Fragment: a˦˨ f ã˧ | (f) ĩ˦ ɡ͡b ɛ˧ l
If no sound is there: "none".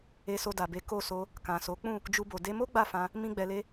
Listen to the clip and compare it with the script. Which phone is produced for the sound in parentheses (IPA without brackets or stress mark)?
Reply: m